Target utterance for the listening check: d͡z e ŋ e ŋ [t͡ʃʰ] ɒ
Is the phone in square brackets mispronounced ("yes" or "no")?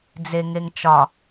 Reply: yes